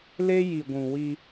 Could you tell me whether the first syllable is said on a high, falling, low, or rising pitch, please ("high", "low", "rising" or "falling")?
high